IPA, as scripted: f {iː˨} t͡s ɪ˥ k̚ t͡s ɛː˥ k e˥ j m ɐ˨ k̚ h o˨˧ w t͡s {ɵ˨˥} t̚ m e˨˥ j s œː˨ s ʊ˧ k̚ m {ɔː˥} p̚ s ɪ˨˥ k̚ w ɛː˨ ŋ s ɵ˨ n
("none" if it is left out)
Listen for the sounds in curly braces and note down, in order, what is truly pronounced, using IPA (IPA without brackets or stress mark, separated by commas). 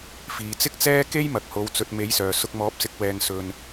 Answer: iː˨, ɵ˨, ɔː˨˥